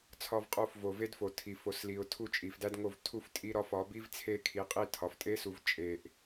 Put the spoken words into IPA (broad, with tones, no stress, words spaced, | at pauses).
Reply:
t͡sʰɒ˧vqʼo˧f vo˨ve˦dfo˨ tʰi˨fo˨sli˨ʊ̯tʰu˧ t͡ʃʼi˨fdæ˦dŋo˦˨v tʰu˧ftʼi˧ɾɒ˧f ɒ˨˦bi˦vt͡sʰe˦˨ kʰi˨qʼi˦˨ tʰɒ˨ftʼe˦su˨v t͡ʃʼe˨ʔ